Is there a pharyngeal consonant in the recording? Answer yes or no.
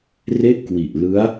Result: no